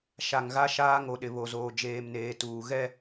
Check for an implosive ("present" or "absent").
present